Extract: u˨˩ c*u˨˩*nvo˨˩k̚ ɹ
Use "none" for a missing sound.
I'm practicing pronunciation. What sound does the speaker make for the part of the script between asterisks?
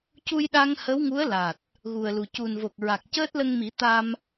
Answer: u˨˩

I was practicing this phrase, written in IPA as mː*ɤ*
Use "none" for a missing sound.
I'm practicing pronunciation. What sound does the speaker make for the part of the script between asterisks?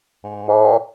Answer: ɔ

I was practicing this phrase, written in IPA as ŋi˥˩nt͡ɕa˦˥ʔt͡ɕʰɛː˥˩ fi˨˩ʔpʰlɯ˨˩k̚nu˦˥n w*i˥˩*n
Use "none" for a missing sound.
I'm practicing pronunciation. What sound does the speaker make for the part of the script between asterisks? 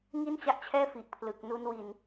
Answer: i˧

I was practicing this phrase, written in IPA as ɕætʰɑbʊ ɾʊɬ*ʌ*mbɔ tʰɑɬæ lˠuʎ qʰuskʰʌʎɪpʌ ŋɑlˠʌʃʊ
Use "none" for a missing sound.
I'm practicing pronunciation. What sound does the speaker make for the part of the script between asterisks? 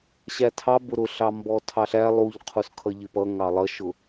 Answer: ɑ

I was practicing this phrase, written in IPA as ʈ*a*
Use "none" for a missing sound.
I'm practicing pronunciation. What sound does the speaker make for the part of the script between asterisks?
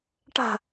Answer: a̤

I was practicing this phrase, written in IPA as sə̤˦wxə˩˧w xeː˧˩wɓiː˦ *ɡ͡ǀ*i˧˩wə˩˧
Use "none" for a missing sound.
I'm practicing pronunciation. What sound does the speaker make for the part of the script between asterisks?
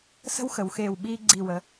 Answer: ɡ͡ǀ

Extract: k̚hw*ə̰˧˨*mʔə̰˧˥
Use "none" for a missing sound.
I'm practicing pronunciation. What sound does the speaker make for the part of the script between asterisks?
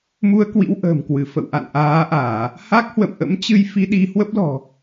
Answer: ə̰˧˨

